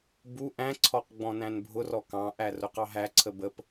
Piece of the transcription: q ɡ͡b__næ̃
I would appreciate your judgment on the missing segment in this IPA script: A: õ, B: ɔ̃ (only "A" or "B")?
B